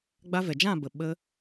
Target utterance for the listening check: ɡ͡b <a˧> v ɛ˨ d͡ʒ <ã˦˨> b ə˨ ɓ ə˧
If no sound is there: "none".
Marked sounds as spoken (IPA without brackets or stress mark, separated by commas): a˧, ã˦˨